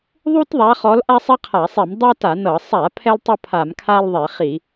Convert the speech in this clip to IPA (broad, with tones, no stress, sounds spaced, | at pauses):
ðˤ u˥ t ðˤ a˨˦ χ ɔ˨˦ l ʔ a˥ sˤ ɛ˥ qʰ a˧˩˧ sˤ i˧˩˧ m dˤ a˥ t a˧˩˧ n ɤ˧˩˧ sˤ a˧˩˧ pʰ ɛ˥ l tˤ ɤ˥ pʰ a˧˩˧ m kʰ a˥ l ðˤ e˧˩˧ χ i˧˩˧